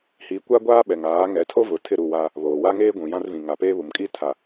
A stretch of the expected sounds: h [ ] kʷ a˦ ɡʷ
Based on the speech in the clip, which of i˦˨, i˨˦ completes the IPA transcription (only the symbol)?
i˨˦